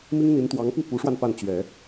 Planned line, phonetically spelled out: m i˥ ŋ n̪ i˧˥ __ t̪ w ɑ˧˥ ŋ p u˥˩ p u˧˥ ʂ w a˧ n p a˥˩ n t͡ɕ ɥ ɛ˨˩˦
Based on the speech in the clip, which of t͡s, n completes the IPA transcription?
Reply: n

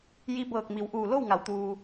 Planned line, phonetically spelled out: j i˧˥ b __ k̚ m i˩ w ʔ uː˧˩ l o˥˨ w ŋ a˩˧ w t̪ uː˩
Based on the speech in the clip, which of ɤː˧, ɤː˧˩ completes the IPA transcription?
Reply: ɤː˧˩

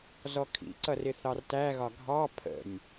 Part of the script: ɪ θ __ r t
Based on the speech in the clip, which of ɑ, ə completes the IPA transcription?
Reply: ɑ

